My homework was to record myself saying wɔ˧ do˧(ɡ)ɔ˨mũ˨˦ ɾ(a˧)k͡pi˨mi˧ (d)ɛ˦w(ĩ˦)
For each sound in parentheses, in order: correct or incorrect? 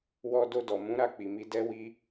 incorrect, incorrect, correct, incorrect

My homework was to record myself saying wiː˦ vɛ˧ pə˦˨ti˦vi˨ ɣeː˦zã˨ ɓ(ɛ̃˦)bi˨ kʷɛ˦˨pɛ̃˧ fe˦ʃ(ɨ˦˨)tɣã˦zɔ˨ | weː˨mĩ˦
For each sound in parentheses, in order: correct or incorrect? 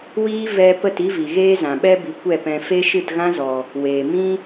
incorrect, correct

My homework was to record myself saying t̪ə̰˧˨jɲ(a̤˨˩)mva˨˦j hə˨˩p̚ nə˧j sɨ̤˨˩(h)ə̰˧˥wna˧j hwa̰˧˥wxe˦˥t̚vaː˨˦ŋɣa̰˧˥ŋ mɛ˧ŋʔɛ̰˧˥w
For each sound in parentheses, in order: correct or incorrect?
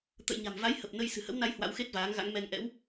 correct, correct

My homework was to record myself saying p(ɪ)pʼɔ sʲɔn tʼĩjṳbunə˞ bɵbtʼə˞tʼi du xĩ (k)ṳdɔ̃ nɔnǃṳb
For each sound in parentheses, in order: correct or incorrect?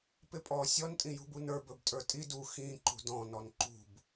correct, incorrect

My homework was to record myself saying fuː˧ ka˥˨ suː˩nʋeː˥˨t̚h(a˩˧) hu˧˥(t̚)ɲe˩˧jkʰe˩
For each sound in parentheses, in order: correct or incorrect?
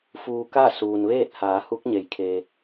incorrect, incorrect

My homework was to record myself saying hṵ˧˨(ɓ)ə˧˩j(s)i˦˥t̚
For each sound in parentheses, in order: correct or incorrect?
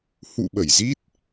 correct, incorrect

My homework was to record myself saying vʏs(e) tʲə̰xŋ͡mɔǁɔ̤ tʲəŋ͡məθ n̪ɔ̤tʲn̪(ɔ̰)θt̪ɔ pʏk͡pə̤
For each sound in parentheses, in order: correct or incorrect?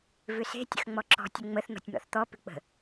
incorrect, correct

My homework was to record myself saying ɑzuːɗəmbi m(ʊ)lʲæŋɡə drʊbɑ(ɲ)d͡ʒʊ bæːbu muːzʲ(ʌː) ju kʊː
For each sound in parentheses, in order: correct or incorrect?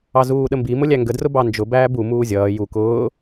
correct, incorrect, correct

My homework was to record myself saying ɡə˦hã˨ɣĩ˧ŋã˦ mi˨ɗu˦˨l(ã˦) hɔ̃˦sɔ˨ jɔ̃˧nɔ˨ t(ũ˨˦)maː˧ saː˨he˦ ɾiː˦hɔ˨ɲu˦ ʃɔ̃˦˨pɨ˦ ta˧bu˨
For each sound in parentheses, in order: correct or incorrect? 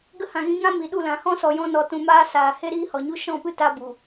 incorrect, incorrect

